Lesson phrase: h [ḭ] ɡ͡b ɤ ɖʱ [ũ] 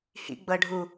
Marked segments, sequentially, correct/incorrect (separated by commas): correct, incorrect